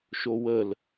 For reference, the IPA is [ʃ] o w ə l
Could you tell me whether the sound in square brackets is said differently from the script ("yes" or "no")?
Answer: no